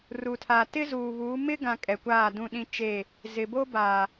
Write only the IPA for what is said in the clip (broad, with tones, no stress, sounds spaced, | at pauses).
r u˨ tʰ aː˨ t ɪ˦ z uː˨ β uː˨˦ m ɪ˦ ɡ ã˨ kʼ ɛ˨ kʷ aː˦˨ d ũ˦˨ ɗ ĩ˦ t͡ʃ e˦˨ | z ɪ˨ b o˦ b aː˨